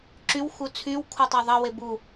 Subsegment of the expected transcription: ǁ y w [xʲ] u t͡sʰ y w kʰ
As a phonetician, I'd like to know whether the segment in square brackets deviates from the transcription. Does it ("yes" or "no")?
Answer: yes